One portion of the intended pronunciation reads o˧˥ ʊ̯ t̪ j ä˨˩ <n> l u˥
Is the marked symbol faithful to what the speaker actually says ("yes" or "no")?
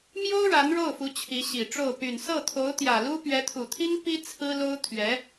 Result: no